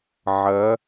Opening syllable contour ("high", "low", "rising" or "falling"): rising